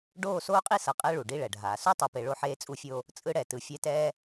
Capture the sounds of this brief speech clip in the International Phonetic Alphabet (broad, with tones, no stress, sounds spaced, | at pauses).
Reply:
ɖ oː˦˨ s oː˦ qʼ i˦ s ʌ˨˦ qʼ ɛ˦ ɭ u˨ ɖ i˦ ɭ ɛ˨ ɖʱ aː˨ s u˦ tˤ ʌ˨ p e˨ ɭ o˦ ħ eː˦ t͡sʼ u˦ fʲ o˦ | t͡sʼ ɯ˦ ɽ ɛ˨ t ɯ˨ fʲ ɛ˦˨ t ɛː˦